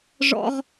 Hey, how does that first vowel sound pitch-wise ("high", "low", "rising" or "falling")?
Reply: high